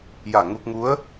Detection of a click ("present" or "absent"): absent